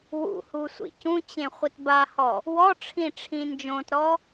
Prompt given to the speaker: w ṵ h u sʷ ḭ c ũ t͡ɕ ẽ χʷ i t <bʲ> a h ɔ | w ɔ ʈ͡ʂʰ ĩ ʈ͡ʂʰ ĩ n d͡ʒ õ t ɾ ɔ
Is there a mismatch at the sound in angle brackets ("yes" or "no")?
yes